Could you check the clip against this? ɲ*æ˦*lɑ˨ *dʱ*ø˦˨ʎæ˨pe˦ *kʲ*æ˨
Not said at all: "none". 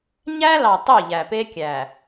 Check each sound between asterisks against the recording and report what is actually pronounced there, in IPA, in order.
æ˦, tˤ, kʲ

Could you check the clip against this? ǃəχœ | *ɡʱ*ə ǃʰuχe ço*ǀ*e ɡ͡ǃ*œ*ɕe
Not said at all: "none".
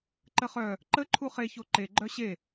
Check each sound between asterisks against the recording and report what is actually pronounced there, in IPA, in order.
ǃ, ǃ, œ

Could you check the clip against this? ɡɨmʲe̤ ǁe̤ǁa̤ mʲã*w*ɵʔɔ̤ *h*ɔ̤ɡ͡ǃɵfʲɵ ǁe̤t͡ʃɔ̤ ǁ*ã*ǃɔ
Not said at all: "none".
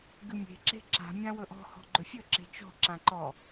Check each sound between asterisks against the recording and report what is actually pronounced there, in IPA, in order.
w, h, ã

